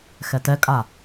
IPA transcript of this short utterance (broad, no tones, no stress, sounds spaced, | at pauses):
x ɛ t ɛ kʼ a